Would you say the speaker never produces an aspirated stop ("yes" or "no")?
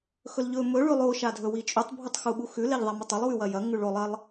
yes